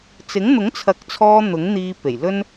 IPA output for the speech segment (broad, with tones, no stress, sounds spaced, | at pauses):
t͡s ɪ˨˥ ŋ n̪ ʊ˨˥ ŋ t͡sʰ ɐ˨˥ k̚ t͡sʰ ɔː˧ n̪ ʊ˨˥ ŋ n̪ iː˧ p e˨˩ j l ɵ˥ n